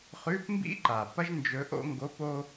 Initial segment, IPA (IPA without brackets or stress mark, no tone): χ